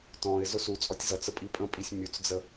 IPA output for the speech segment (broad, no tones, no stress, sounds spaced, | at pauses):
t ɔ̃ ɪ̯ z ʊ s u t͡sʼ ɔ tʲ z ʌ t͡s ə pʼ i pʼ ə̃ pʼ i sʲ mʲ u t͡s d͡z ə